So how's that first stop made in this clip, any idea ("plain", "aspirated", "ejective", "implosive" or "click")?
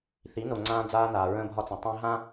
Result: click